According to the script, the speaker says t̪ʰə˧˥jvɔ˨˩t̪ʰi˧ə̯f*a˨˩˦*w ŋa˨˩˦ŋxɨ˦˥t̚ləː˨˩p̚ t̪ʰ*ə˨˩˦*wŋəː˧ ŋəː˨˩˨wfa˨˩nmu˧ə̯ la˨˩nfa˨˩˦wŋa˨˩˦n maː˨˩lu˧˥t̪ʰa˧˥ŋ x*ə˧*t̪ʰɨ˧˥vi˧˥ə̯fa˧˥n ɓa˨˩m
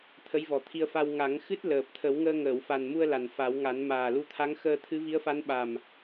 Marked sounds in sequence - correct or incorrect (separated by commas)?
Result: incorrect, correct, incorrect